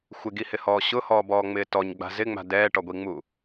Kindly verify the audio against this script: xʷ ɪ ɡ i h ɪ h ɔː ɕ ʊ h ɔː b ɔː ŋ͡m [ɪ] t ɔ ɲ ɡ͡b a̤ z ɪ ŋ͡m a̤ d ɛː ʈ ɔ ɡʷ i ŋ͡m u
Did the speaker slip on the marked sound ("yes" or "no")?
yes